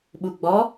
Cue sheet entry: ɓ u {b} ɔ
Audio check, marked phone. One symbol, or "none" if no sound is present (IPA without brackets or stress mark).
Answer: ɡ͡b